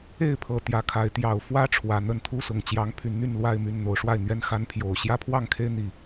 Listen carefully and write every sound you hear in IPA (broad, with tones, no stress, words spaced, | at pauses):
e˥˨ɪ̯pʰɤ˨˩ t̪jä˨˦kʰa˨˦ɪ̯ t̪jɑ˨˩ʊ̯fwä˦ ʈ͡ʂʰwä˨˩n̪ə˥˨n t̪ʰu˦sʊ˨˩ŋ t͡ɕjɑ˨˦ŋpʰy˨˦n n̪y˥˨nlwa˥˨ɪ̯my˥˨n n̪o˨˦ʊ̯ʂwa˥˨ɪ̯n̪ɥɛ˦n xa˦npʰjo˨˩ʊ̯ ɕjä˦pʰwɑ˥˨ŋkʰe˦ɪ̯n̪i˨˩